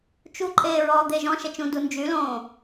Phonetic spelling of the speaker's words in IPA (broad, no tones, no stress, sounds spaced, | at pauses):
t͡ʃ u ǃʼ eː ɹ ɔː d̪ e ʒ ɔ̃ ʃ ɛ t͡ʃ ũ d u n d͡ʒ y l õː